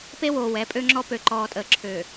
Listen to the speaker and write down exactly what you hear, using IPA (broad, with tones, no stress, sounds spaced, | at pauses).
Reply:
p e˦ w oː˨ w ɛ˨˦ pʼ ø˦ ŋ͡ǁ ɔ˦ p ø˨ ǃ ɔː˨ tʼ əː˨ ǁʰ øː˨